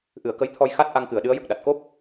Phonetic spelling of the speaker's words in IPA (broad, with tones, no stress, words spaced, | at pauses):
ʔɨ˨˩˨ə̯kə˧˥jt̪ʰɔ˧j xa˦˥t̚ ʔa˧ŋkɨ˨˩˨ə̯ɗɨ˧˥ə̯ jə˨˩k̚ɗa˨˩t̚ ko˦˥p̚